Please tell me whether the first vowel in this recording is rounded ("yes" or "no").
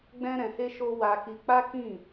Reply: no